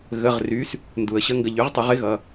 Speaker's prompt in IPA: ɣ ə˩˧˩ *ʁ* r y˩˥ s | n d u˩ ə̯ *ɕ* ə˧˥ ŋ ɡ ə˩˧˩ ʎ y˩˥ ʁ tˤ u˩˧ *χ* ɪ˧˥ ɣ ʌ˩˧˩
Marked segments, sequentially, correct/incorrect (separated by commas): correct, correct, incorrect